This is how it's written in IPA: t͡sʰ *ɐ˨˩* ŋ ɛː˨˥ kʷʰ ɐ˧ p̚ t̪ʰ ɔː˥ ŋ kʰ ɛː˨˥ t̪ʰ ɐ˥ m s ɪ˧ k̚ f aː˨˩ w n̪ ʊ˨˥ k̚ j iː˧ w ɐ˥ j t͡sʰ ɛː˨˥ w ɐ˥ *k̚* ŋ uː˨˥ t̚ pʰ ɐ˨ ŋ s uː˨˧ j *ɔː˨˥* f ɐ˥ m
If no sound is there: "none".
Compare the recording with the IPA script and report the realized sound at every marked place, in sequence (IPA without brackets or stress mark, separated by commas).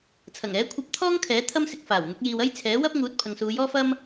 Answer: ɐ˨˩, p̚, ɔː˥